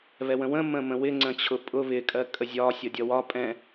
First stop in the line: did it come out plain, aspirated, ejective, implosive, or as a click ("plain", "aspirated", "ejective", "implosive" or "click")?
click